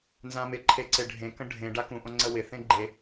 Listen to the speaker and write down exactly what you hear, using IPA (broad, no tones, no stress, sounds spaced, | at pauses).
n z ã m ɪ ǃʰ e ǀ e ɖʱ ẽ k ə̃ ɖʱ ẽ ɖ a k ũ ʔ õ ŋ͡ǀ ə w ɪ θ ẽ ɡ͡ǃ e